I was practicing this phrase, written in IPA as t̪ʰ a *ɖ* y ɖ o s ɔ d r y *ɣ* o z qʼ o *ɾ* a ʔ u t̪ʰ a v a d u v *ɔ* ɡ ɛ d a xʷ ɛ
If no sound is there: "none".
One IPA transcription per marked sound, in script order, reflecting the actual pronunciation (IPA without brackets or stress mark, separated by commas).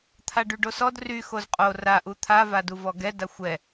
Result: ɖ, x, r, ɔ